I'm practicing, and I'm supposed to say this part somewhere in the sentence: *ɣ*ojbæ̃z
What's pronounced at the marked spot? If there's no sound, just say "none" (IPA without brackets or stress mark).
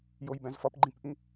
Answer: j